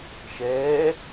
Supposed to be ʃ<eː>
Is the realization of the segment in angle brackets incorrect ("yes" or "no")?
yes